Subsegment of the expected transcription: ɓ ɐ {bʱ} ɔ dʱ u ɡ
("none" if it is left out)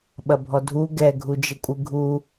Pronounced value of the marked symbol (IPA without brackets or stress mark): bʱ